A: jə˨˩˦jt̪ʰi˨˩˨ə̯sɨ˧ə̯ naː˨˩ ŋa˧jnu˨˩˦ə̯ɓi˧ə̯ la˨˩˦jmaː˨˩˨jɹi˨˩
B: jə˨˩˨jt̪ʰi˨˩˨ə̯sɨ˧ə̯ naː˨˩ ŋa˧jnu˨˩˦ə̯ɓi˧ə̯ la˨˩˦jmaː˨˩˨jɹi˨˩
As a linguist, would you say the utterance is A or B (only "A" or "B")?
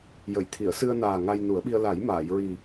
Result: B